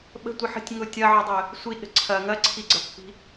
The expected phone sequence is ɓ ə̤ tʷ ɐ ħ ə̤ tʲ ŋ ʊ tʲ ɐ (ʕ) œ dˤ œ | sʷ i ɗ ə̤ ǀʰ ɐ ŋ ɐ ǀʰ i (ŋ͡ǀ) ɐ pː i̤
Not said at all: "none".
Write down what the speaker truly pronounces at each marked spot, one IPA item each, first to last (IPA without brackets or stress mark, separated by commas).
ʕ, ɡ͡ǀ